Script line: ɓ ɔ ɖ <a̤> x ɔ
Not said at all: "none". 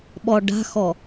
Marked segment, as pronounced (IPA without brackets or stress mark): a̤